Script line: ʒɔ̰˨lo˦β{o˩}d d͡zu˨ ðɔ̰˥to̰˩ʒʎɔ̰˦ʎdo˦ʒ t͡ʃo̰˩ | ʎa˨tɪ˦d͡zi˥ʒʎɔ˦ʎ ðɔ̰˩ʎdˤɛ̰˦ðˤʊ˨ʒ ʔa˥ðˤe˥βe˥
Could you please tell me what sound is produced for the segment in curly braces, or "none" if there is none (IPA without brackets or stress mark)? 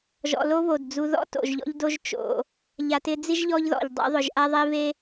o˩